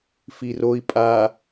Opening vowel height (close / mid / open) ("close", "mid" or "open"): close